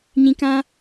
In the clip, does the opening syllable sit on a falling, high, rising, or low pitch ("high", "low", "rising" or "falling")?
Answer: low